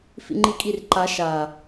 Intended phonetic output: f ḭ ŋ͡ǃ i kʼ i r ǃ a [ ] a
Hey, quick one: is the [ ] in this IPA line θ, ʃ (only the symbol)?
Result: ʃ